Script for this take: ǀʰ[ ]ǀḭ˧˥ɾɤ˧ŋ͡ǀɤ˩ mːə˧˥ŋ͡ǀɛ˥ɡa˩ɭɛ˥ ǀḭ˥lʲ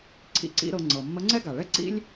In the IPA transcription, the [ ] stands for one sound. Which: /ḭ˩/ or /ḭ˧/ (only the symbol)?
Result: ḭ˧